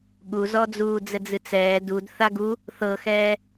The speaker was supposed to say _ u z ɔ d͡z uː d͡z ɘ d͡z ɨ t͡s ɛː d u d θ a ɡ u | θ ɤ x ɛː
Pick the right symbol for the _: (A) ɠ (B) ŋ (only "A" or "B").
A